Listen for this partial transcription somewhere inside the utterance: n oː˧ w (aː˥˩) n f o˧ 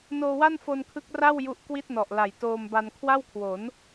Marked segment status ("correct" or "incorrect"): incorrect